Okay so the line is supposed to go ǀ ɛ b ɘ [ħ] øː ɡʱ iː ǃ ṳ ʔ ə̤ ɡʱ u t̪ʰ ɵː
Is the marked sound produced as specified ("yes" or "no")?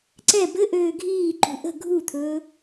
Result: no